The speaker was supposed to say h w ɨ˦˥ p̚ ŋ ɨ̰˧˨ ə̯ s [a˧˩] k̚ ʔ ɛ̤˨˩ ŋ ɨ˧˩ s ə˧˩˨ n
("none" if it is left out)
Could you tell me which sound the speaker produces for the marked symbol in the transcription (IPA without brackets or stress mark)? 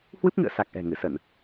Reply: a˨˩